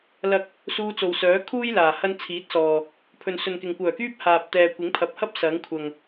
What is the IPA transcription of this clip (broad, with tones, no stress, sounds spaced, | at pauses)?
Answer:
l ɐ˧ k̚ | s uː˧ t͡s o˨ w s œː˨˥ kʰ uː˥ j l aː˨˩ h ɐ˥ n t͡sʰ iː˨˥ t̚ s ɔː˨ | pʰ ɵ˨ n s ɵ˨ n k ɪ˨ ŋ kʷ œː˨˩ k yː˥ p̚ h aː˨ p̚ t̪ ɛː˨ kʷ ɪ˨˥ ŋ pʰ ɐ˨˥ p̚ h ɐ˥ p̚ s ɐ˨˥ ŋ kʷʰ ɐ˨ ŋ